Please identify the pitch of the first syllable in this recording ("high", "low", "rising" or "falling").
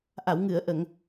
low